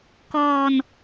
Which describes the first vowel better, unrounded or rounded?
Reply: rounded